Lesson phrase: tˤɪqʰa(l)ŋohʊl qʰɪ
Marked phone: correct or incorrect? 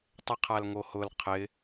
correct